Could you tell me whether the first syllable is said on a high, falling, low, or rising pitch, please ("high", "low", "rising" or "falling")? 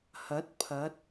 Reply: rising